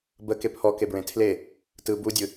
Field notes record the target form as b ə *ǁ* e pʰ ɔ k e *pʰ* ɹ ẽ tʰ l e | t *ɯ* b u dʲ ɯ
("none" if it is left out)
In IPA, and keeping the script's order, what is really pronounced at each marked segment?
k, b, ɯ

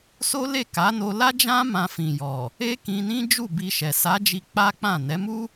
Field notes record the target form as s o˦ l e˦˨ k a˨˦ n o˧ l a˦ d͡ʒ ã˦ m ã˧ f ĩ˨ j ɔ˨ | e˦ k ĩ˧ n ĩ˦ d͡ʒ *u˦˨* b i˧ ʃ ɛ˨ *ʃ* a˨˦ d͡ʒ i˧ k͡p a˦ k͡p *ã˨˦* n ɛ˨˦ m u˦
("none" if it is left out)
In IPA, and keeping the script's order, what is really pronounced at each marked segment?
u˦˨, s, ã˦˨

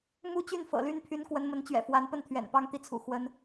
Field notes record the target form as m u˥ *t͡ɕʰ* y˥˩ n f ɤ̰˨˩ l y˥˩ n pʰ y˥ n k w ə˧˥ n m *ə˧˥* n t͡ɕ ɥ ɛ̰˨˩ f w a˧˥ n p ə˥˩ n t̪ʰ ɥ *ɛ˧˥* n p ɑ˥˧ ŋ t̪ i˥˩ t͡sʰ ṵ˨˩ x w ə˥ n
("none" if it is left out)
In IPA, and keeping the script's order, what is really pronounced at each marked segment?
t͡ɕ, ə˧˥, ɛ̰˨˩

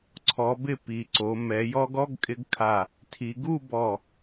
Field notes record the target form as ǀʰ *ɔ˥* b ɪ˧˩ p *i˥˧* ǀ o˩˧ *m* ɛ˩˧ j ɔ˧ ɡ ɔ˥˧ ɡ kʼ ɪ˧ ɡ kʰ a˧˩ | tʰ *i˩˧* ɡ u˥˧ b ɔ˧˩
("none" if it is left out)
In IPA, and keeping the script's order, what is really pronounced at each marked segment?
ɔ˩˧, i˩˧, m, i˩˧

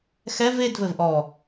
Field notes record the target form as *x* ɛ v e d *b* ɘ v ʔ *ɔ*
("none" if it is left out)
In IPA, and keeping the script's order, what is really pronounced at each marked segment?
x, v, ɔ

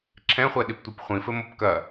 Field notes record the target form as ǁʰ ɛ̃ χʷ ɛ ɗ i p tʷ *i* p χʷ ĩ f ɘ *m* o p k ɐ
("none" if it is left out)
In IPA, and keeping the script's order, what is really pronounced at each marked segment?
i, m

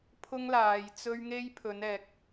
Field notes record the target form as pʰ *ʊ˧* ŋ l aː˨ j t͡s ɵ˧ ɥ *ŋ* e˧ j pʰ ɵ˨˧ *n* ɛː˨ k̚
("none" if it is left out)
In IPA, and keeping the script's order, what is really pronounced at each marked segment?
ʊ˧, ŋ, n

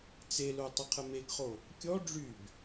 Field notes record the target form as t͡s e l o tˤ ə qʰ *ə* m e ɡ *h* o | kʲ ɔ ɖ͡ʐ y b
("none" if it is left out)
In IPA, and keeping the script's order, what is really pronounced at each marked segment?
ə, χ

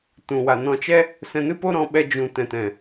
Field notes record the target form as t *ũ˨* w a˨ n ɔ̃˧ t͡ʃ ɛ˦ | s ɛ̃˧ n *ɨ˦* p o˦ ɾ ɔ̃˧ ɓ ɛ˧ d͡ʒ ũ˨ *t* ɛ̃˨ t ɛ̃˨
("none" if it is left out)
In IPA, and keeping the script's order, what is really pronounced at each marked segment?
ũ˨, ɨ˦, t

